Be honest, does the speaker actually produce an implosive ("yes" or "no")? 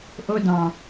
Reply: no